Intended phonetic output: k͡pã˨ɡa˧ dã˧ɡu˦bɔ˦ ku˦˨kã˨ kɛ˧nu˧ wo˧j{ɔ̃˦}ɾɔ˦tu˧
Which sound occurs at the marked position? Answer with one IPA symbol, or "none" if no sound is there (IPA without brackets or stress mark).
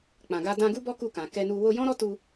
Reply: ɔ̃˦